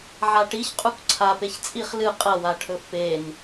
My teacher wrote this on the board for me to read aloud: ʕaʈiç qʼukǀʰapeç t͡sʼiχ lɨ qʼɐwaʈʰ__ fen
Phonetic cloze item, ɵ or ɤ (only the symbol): ɵ